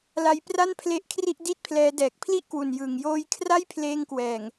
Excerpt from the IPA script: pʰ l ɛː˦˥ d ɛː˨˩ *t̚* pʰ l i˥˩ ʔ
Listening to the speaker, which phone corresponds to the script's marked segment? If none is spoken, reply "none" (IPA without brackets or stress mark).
k̚